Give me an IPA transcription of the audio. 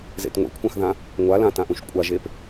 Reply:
z ḛ t ŋʷ ḛ kʷʰ ã x ð ã | ŋʷ a l ã t ã ʔ ũ ʃ kʷʼ a ʒ e p

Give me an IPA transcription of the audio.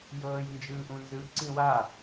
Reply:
j ɤː j n d͡ʒ ɯː ʔ ũ n z ɯ ǀ ĩ w a

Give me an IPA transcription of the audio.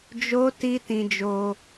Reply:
d͡ʒ o˦ t i˦ t ĩ˧ d͡ʒ o˧

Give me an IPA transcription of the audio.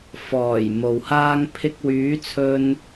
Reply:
f ɔː˨˩ j m o˨ w h aː˥ ŋ pʰ ɪ˧ k̚ w yː˨˥ t͡sʰ ɵ˧ n

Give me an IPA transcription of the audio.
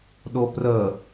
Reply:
ɗ o p r ə

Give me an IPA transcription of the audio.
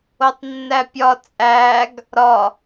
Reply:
o tˤ nː æ pʲ ɒ t͡sʼ æ ɡ | ɾ ɒ

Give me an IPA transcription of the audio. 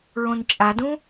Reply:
ɹ õ n t͡ʃʼ a d ũ

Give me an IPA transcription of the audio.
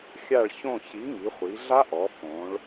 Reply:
xʲ a˦˨ ɭ ç õ˦˨ ç i˨˥ ŋ i˩˧ χʷ i˩˧ ɮ a˦˥ ʔ ɔ˩˧ f õ˩˧ ɭ

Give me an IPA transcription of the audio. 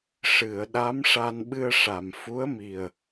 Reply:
ʂ ɨ˨˩˨ ə̯ ɗ a˧˥ m ʂ a˧ n ɓ ɨ˧ ə̯ ʂ a˨˩˨ m f u˧˥ ə̯ m i˨˩ ə̯

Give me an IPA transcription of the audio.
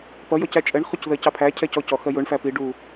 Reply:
p ʌ j ɔ c æ t͡ʃʼ ɛ ɳ χ u c ð ɜ c ɑ pʰ æ cʰ ɛ c ɔ c ɔ x ɜ j ʊ ɳ f æ p i ɖ u

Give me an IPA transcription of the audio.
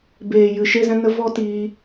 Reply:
b eː˨ j ɨ˨ ʃ e˦ z ɛ̃˦ n ə˦ v ɔ˦ t iː˧

